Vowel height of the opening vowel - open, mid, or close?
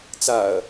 open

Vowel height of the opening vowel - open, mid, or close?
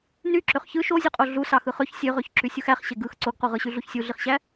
close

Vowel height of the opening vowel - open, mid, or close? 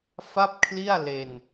open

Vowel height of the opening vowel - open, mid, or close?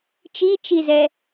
close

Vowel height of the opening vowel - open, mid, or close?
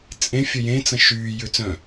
mid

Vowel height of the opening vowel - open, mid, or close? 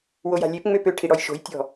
mid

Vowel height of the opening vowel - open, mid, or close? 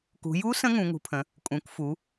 close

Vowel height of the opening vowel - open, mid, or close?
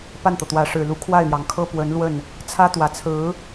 open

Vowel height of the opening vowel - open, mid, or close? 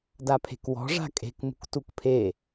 open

